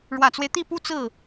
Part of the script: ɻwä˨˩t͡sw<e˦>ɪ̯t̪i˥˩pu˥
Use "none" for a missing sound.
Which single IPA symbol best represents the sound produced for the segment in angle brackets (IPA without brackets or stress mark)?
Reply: e˦